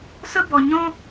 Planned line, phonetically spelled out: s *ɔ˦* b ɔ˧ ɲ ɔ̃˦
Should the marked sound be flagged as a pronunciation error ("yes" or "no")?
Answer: yes